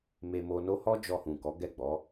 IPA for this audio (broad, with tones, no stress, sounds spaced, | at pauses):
m e˨ m o˨ n o˧ h ɔ˦ d͡ʒ ɔ˧ h ũ˨ k ɔ˨˦ ɡ ɛ˦˨ ɡ͡b ɔ˨˦